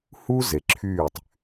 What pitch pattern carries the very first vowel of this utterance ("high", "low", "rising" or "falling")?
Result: high